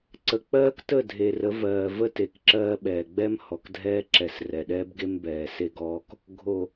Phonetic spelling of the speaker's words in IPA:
ǀ ə˨ k͡p ɜː˦ k t ə˦˨ dʱ e˨ r ə˨˦ v ɜː˨ v ə˦ t e˨ k ǁ ɜː˦ ɓ ɛː˨ ɡ͡b ɛ˦ m h ɔ˨ k dʱ ɛː˦ ǁ ɛ˨ s r ɛ˨ ɗ ɛː˦ b ɡ e˦ m b ɛː˨ s e˦ ɡ ɔː˦ k | ɡʱ o˨

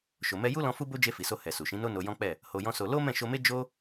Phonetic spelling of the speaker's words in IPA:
ʃ o˨ m ɛ˧ j u˦ l ɔ̃˧ f u˦ b o˦ d͡ʒ e˧ f i˨ s o˧ h ɛ˨ s u˨ ʃ ĩ˨˦ n o˦ n o˧ j ɔ̃˦ k͡p ɛ˦˨ | h o˧ j ɔ̃˦ s o˧ l o˦ m ɛ̃˦˨ ʃ o˧ m e˦ d͡ʒ o˦

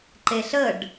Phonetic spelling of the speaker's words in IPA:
ǃ e ɬ ə ɖ

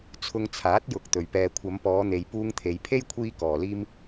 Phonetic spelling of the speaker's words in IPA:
t͡sʰ ʊ˧ ŋ t͡sʰ aː˨˥ t̚ j ʊ˨ k̚ t̪ ɵ˨ ɥ p ɛː˧ kʷʰ ɐ˨˧ m p ɔː˨˧ n̪ e˨ j p uː˧ ŋ t̪ʰ e˨ j pʰ e˥ j kʷʰ iː˥ k ɔː˨ l iː˥ m

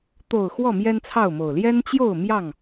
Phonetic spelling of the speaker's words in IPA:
t̪ o˨˩ ʊ̯ x w ɔ˥˨ m j ɛ˦ n t͡sʰ ɑ˥˨ ʊ̯ m o˨˩ ʊ̯ l j ɛ˦ n t͡ɕ j o˥˨ ʊ̯ m j ɑ˥˨ ŋ

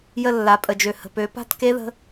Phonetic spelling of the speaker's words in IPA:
j ə˧ lː a˩˧ pʼ ə˩ d͡ʒ ø˩ h ə̤˩ p ø˩˧ p a̤˥ t k e˧˥ ð ə̤˧

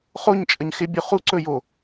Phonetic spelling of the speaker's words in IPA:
χ o ɲ t͡ʃʼ ə ɲ x ɪ bʲ o χ u ǀ ɵ j o

